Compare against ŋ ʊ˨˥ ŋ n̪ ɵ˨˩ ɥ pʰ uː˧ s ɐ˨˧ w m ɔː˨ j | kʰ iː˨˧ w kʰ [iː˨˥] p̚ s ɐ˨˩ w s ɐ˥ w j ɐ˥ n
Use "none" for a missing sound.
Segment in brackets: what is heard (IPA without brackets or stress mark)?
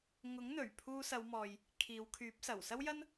yː˨˥